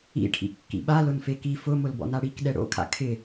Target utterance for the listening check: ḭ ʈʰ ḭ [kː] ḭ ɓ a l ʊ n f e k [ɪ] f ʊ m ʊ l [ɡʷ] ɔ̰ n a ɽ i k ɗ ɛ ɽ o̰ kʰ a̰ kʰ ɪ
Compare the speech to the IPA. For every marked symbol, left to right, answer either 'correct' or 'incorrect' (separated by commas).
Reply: correct, incorrect, incorrect